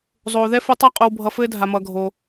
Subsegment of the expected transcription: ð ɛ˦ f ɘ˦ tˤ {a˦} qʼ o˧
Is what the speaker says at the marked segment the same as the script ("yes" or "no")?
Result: yes